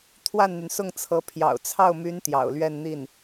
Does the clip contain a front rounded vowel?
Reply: yes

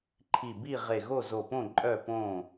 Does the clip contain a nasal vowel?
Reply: yes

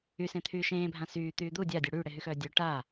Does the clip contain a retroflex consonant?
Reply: yes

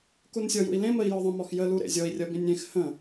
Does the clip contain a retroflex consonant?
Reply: no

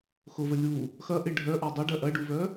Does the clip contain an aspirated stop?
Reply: no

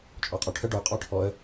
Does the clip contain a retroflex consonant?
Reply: yes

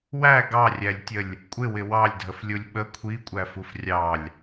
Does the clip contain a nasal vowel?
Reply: no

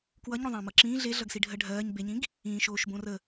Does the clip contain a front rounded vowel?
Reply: no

